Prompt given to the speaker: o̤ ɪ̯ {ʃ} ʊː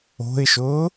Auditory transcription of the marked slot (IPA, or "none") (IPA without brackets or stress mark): ʃ